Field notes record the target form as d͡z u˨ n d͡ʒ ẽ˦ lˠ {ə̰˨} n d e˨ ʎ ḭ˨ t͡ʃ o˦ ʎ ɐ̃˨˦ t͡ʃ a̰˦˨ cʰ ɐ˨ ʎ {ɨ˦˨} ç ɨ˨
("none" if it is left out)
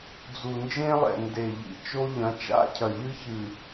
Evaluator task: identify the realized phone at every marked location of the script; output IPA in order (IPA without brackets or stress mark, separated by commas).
ɛ̰˨, ɨ˦